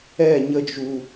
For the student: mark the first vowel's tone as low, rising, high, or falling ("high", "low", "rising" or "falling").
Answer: falling